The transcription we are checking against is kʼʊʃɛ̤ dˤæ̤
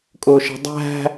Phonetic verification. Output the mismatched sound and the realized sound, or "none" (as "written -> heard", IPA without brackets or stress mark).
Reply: none